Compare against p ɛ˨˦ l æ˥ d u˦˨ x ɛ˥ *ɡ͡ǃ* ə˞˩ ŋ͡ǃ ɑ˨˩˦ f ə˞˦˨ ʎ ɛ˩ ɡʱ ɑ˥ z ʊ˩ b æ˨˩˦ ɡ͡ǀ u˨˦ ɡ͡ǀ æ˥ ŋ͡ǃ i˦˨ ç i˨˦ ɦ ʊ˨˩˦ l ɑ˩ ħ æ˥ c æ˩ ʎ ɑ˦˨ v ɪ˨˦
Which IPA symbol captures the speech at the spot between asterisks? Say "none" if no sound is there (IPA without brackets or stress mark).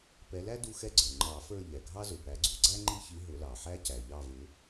ɡ͡ǀ